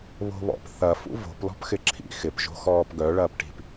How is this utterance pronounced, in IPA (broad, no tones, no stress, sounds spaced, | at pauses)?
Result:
β o̤ β ɔ̰ p θ ɐ f ṵ v o̤ p l ɔ̤ p x ɪ ǁʰ ḭ x ɪ p ʒ o̤ x ɔː p ɡ œ ɭ ɐː p ʈ i̤ p